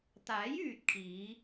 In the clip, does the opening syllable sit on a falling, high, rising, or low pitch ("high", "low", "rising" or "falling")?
rising